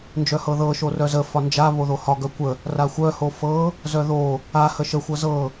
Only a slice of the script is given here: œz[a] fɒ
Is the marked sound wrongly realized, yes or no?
yes